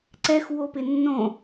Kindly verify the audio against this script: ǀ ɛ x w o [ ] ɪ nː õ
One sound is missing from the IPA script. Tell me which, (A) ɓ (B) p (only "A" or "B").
B